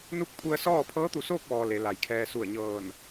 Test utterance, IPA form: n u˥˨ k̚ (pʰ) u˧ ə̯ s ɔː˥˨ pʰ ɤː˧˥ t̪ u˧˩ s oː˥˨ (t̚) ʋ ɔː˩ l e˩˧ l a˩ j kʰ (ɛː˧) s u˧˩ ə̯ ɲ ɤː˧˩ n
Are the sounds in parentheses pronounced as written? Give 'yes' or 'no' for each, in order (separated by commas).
yes, no, yes